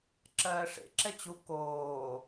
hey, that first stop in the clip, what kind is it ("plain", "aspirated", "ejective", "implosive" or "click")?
click